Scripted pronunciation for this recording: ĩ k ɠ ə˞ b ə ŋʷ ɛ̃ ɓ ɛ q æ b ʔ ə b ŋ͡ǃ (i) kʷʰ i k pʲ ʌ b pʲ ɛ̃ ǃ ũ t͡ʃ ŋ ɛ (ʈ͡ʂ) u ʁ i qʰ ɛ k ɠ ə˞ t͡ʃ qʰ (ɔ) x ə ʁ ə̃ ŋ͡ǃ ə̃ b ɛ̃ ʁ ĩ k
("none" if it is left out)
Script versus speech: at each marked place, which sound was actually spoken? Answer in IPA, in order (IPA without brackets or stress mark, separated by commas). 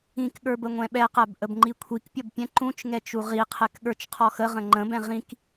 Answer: i, t͡ʃ, ɔ